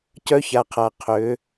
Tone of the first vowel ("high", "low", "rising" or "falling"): high